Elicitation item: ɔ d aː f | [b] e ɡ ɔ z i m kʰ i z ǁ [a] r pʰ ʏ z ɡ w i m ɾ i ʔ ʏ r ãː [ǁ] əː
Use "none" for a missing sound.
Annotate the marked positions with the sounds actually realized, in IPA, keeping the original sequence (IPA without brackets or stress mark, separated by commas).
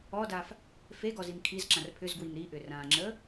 f, ã, ŋ͡ǁ